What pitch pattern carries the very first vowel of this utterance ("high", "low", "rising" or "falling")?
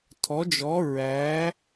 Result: rising